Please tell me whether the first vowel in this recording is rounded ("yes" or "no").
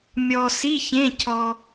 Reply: yes